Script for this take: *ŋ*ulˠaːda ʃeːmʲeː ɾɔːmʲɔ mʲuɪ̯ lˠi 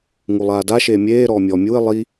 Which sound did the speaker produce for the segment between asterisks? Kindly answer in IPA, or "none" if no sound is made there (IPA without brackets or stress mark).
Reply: ŋ